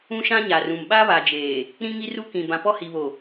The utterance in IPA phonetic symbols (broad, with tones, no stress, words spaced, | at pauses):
ũ˦ʃã˦ɲa˨rũ˨m ɓa˦βa˨d͡ʒeː˨ | ɾĩ˦ŋi˦ru˦kĩ˨ bã˨pɔ˦hi˨βo˨